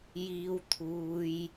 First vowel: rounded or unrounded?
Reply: unrounded